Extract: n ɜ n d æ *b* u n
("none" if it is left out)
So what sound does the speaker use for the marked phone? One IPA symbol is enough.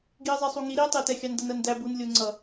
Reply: b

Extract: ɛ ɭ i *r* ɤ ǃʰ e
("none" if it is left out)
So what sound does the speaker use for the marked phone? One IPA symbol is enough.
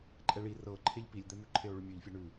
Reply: r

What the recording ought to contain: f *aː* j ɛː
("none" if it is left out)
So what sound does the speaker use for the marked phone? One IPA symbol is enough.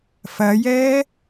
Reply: ɐː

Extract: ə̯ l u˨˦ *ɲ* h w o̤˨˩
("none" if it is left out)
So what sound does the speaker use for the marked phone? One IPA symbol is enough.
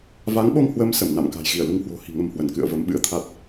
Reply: ŋ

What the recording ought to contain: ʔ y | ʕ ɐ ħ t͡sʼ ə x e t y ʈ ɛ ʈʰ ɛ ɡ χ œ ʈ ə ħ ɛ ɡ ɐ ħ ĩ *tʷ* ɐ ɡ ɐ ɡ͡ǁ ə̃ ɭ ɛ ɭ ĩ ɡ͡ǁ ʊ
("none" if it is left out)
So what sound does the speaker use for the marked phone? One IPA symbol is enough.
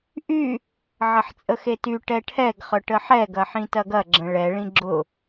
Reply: t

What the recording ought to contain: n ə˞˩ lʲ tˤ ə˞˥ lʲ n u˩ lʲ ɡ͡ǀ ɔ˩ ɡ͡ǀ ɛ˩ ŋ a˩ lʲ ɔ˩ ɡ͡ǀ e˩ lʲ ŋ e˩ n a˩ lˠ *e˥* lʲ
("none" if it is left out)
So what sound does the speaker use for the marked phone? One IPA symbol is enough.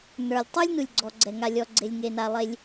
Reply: e˩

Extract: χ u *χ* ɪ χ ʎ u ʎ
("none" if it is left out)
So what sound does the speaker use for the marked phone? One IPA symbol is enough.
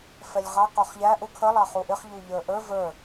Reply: ʔ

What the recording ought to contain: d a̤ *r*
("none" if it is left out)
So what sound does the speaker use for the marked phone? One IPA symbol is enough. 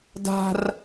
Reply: r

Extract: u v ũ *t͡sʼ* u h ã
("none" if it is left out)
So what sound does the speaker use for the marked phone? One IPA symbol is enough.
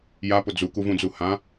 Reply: d͡z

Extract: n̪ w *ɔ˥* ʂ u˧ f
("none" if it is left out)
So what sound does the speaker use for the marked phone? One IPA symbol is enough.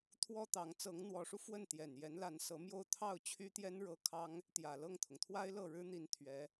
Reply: ɔ˧˥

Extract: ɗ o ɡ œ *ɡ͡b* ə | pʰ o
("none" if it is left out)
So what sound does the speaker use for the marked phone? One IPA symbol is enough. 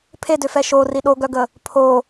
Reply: ɡ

